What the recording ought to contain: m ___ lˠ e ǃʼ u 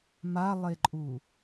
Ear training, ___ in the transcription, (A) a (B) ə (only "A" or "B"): A